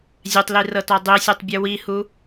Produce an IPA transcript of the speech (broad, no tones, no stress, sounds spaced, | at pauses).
zʲ ɛ tˤ l i r ɤ t ɔ dˤ i sʲ e tˤ bʲ ɯ w i h u